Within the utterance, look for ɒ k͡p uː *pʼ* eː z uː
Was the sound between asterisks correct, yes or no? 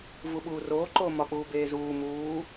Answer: no